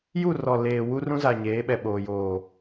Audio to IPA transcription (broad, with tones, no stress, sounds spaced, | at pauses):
j u˦˨ r ɔ˨ l eː˨ w u˦ r ũ˦ z a˨ ɲ eː˨˦ ɓ ɛ˨ ɓ oː˨ j oː˨